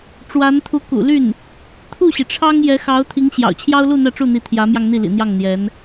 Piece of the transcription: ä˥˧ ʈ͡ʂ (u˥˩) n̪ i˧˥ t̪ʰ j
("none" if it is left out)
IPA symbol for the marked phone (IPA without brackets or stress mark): u˥˩